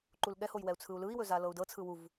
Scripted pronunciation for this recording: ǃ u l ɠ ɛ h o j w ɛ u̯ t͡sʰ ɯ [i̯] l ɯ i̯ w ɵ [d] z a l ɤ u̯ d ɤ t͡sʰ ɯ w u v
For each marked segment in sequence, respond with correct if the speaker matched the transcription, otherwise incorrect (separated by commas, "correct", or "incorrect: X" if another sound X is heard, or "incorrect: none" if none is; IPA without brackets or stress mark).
incorrect: u̯, incorrect: none